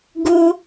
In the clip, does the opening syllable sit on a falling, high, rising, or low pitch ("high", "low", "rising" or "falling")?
high